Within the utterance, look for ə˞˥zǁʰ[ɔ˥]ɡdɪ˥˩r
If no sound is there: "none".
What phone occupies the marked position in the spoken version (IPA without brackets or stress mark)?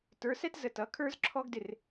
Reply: ɔ˥